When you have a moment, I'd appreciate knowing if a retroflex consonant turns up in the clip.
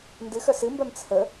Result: no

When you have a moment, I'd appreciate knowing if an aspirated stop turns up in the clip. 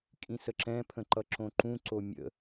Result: yes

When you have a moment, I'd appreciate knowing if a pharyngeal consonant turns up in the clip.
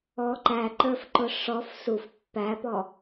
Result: no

